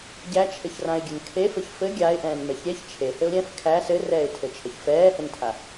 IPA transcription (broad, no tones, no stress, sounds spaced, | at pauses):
ɟ æ t͡ʃʰ ɘ ç r ã ɪ̯ ɡʲ ɘ n kʰ e f ɘ ç f ɘ ɡʲ a ɪ̯ ʔ ɛ̃ː n m ɛ ç ɾʲ ɛ ç t͡ʃʰ e h ɘ ʊ̯ ɾʲ ɛ̃ f kʰ æ s ɘ r ɛː ɪ̯ tʰ ɘ t͡ʃʰ ə ç f ɛː h ɘ n tʰ a